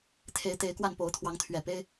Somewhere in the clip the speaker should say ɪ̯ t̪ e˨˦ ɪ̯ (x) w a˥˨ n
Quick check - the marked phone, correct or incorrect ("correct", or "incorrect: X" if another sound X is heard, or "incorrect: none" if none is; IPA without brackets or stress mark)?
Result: incorrect: k